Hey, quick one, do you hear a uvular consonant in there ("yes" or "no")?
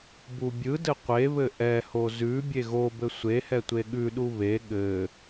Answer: yes